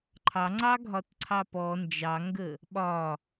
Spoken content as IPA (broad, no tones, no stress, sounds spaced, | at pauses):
ǃʰ ɑ ŋ͡ǀ ɑ ɡʱ ɒ t ǀʰ ɑ p ɔ n d͡ʒ ɑ ŋ ɡ ə | ɓ ɒ